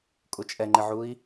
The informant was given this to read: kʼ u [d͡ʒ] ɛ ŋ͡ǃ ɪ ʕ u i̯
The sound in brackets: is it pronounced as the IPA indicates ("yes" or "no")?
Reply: no